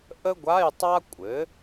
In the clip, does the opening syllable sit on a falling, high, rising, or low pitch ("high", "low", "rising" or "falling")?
high